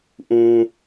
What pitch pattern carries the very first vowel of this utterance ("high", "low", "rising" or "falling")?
high